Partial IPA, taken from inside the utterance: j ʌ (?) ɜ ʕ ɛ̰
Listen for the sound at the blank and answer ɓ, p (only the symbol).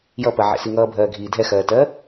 p